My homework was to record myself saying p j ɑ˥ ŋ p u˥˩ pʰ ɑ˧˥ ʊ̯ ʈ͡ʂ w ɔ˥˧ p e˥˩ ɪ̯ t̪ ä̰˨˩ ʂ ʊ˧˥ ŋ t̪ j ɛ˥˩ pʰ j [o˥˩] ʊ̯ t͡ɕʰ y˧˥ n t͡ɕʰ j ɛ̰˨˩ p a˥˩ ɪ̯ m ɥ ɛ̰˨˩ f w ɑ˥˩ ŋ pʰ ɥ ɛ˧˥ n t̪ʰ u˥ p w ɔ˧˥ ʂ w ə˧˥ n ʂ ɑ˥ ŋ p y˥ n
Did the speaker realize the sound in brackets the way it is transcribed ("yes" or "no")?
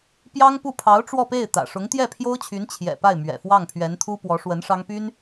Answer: no